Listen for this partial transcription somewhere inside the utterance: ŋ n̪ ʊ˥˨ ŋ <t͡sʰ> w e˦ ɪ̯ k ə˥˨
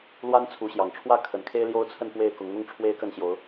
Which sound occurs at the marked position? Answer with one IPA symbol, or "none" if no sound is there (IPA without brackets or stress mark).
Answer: ʈ͡ʂʰ